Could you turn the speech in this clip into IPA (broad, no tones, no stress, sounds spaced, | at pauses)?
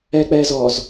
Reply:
ɛ k͡p ɛ z ɔ z